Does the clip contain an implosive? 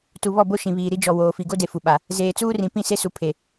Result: yes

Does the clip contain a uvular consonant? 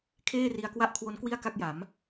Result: no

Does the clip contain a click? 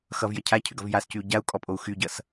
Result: no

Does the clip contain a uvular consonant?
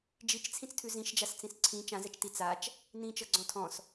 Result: no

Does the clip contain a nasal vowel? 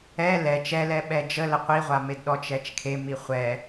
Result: no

